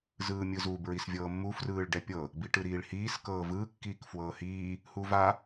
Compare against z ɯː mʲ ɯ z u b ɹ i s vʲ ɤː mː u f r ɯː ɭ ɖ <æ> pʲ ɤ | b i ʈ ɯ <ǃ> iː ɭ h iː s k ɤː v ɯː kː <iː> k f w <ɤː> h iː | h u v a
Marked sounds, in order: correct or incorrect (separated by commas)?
incorrect, incorrect, correct, correct